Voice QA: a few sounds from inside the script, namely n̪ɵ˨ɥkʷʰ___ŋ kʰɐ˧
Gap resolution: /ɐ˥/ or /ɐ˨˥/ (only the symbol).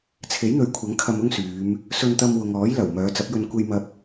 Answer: ɐ˨˥